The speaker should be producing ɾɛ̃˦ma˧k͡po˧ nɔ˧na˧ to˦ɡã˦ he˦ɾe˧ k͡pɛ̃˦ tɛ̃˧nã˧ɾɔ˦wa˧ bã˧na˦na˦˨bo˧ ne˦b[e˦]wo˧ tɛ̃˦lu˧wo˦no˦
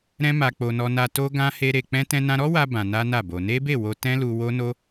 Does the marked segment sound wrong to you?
yes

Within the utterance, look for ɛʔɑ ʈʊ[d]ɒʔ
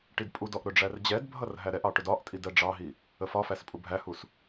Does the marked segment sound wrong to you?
no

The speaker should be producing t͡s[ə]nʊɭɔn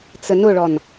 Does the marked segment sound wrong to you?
no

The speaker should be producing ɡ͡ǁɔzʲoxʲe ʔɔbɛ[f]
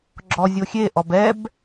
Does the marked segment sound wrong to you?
yes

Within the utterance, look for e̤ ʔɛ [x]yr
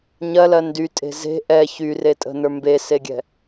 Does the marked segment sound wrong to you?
yes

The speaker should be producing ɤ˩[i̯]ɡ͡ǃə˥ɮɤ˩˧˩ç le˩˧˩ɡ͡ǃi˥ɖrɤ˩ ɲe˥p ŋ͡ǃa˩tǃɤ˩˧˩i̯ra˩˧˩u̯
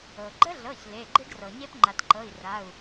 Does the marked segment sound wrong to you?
yes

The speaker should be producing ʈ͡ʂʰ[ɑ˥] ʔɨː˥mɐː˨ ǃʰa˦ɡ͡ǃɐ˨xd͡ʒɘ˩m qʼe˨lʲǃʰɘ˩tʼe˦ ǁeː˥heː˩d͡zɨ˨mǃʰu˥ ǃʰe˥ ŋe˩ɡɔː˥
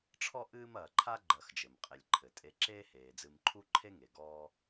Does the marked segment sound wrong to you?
yes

